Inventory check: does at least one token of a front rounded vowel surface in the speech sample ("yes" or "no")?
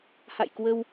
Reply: no